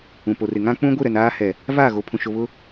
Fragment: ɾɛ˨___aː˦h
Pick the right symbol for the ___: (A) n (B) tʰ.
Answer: A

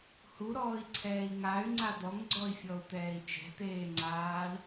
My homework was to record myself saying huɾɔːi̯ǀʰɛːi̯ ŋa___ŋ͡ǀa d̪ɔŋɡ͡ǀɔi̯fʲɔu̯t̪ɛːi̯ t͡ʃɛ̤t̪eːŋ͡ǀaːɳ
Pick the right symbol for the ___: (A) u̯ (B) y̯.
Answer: B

